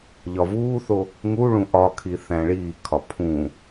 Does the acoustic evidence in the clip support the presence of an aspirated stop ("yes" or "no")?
yes